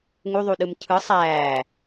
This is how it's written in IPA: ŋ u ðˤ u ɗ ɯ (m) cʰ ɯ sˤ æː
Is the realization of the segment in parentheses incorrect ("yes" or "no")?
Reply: no